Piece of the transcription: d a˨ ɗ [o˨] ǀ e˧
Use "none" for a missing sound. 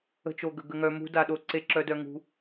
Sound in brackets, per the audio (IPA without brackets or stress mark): o˨